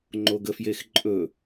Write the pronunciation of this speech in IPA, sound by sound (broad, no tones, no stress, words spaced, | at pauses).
ŋ͡ǃoɡəfjexǃʼɵ